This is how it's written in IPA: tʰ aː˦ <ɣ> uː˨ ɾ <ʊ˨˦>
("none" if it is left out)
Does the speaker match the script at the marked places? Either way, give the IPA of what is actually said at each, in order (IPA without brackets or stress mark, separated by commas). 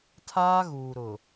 ɣ, ʊ˨